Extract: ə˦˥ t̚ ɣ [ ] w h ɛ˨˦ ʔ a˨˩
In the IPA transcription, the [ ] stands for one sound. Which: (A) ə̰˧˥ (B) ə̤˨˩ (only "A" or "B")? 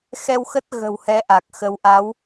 B